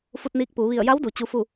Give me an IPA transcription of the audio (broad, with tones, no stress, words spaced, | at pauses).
fu˧t̚niː˧k̚puː˩˧ ʋi˧˩ə̯ja˧˥wdu˩ t͡ɕu˧fu˥˨